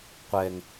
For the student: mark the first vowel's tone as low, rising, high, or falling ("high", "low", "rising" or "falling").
low